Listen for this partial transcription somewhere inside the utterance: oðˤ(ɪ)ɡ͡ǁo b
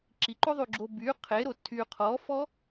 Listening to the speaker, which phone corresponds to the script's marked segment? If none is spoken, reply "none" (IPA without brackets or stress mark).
y